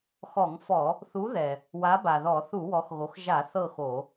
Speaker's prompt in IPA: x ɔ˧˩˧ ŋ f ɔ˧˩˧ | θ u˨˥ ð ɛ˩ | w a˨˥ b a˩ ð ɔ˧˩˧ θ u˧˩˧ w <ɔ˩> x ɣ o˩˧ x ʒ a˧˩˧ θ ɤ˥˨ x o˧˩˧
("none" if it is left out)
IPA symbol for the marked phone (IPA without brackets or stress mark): ɔ˩˧